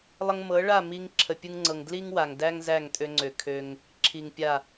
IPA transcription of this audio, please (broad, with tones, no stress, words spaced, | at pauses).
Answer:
lˠə˧ŋmɤ˨˦ɭa˦˨mi˧ŋ ǁʰə˨pʲɯ˧ŋŋ͡ǀɤ˨ŋ dli˦ŋwa˨ŋdæ˦ŋ zæ˦˨ŋtʼø˧ŋ͡ǀø˨kʰø˧ŋ | ǁʰi˨ŋpʲa˦˨